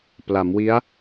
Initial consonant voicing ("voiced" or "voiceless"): voiceless